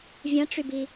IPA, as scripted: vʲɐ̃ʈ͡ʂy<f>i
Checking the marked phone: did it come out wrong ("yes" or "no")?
yes